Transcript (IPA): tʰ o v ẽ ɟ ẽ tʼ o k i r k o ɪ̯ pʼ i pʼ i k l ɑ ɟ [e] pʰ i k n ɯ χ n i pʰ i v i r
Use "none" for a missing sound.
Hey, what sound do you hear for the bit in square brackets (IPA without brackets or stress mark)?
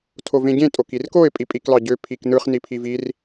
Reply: ø